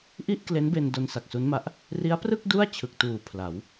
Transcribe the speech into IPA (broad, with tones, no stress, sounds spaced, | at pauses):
ʔ i˥˩ ʔ k l e˦˥ n b e˧ n d o˧ n s a˨˩ k̚ s u˦˥ n m a˦˥ ʔ | r i˦˥ a̯ p r ɯ˥˩ k̚ d u˥˩ a̯ t͡ɕʰ ɯ˨˩ k̚ t uː˨˩ pʰ l a˩˦ w